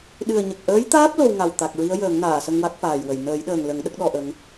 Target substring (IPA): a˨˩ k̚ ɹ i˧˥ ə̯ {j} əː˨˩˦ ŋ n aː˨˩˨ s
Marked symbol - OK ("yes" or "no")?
yes